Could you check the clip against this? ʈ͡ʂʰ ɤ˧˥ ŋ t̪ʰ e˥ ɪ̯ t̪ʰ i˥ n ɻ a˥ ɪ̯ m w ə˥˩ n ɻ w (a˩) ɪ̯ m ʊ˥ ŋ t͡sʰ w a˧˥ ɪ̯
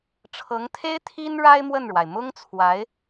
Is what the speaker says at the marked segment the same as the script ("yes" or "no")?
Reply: yes